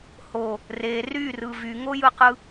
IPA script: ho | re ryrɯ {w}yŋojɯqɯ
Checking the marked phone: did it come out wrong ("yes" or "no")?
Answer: yes